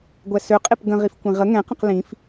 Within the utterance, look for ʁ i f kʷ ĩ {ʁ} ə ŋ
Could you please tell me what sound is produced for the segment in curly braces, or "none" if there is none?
ʁ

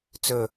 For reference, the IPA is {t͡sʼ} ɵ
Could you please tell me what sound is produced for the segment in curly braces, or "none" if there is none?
t͡s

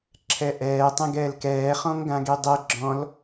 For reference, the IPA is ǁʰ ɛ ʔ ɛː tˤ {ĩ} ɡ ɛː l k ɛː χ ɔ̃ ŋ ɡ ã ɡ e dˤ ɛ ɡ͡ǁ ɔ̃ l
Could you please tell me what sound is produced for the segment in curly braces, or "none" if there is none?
ẽ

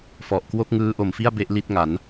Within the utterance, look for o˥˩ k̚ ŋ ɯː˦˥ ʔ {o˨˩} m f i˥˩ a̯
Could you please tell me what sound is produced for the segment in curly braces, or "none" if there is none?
o˨˩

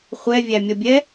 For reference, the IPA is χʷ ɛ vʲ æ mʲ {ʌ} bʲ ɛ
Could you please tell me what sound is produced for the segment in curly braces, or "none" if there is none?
ʌ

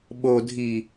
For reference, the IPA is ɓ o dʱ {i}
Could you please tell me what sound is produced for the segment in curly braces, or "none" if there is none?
i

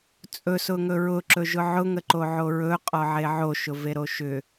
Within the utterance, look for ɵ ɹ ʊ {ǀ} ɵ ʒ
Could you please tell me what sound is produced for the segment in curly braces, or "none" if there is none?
ǁ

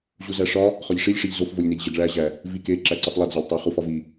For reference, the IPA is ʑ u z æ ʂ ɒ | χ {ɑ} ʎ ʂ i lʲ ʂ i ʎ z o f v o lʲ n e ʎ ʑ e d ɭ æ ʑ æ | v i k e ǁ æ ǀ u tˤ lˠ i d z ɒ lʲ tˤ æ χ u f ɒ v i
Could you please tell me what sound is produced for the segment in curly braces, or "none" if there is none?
ɒ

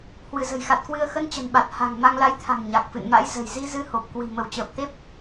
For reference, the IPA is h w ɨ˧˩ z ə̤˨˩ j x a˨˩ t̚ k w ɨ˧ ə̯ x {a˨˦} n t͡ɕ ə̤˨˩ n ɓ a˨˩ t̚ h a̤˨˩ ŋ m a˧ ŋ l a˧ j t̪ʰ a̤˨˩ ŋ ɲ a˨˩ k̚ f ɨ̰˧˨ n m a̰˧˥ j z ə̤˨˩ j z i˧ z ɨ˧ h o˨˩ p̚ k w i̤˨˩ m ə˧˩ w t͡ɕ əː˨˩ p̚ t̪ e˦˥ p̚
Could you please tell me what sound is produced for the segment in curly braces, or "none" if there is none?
ə˨˦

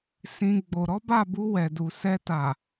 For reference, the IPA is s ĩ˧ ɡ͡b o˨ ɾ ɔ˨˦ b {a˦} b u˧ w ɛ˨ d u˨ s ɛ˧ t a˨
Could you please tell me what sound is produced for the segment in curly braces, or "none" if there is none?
a˦˨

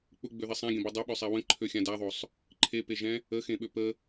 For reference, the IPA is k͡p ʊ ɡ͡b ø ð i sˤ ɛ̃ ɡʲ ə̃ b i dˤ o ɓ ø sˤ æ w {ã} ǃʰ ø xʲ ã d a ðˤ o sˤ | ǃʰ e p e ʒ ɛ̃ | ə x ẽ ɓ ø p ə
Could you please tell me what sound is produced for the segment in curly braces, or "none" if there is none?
ə̃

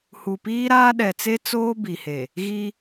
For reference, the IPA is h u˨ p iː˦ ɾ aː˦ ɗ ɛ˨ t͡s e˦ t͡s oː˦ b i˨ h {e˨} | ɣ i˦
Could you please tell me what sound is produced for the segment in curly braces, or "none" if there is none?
e˨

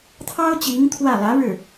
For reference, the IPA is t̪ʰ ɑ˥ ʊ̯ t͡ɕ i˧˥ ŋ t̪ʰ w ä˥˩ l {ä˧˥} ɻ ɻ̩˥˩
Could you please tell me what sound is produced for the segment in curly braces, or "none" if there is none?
ä˧˥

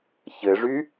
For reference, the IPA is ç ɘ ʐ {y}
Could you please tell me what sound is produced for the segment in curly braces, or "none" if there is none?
y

